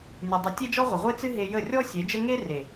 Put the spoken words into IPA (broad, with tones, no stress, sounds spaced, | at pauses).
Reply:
nʲ ɨ˨ dˤ ə˨˦ tʲ e˦ d͡ʒ ɔ˦ ʁʷ ə˨ ʁʷ e˦ t͡s ɨ˦ ɦ e˧ j ə˦˨ rʲ ɔ˦ sʲ e˨˦ d͡ʒ ə˦ ŋ e˦ r e˨